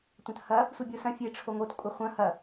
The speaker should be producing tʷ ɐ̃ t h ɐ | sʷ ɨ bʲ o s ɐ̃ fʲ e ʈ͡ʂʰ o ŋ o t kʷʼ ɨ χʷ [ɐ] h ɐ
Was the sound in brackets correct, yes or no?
no